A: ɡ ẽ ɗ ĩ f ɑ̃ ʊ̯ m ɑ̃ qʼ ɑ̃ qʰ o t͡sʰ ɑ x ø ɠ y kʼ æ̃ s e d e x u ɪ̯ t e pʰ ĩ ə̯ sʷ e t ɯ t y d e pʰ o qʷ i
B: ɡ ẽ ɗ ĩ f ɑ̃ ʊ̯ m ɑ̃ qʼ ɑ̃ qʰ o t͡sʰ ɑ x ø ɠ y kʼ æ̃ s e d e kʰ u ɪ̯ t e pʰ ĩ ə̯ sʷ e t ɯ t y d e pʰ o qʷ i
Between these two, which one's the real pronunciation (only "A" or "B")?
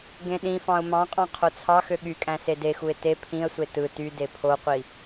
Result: A